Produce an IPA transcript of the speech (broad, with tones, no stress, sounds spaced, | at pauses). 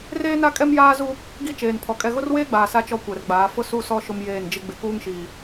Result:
r eː˦ n a˦ kʼ ɛ˦ m j aː˦ z u˦ | ɡ i˦ t͡ʃ eː˨ n pʰ ɔ˨ kʼ ɛ˨ ɣ ʊ˦ r w eː˦ ɡ͡b aː˨ s a˦ t͡ʃ ɔ˦ kʷ ɛ˨ r ɡ͡b aː˨˦ f ʊ˦ s u˦˨ s ɔ˦ ʃ ʊ˦ m j eː˦˨ n d͡ʒ ɪ˦ ɡ͡b ɪ˨ k uː˦ ŋ ʃ iː˨